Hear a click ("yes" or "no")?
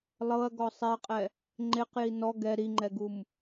yes